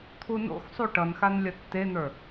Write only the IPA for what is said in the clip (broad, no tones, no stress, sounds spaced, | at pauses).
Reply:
t̪ʰ u n o̰ x sˤ u ʈ ʌ n x a n lʲ ɐ tː e n̪ ə˞